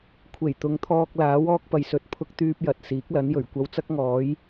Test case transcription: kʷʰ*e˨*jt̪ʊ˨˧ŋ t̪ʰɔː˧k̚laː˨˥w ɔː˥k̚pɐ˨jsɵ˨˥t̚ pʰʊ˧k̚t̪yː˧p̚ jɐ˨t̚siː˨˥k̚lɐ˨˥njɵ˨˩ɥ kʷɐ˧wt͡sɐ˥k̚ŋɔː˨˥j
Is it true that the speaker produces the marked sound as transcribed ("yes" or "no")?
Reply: no